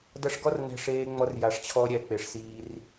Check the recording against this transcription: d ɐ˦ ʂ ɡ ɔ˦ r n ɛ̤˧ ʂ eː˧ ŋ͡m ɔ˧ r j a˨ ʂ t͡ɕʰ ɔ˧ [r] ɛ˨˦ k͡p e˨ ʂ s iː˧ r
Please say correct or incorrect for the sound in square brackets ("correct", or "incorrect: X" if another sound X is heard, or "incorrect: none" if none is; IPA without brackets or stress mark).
incorrect: ɾʲ